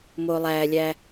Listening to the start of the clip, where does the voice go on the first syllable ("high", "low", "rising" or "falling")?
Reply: low